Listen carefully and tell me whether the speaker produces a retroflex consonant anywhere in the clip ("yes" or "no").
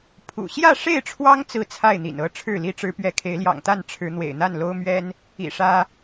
yes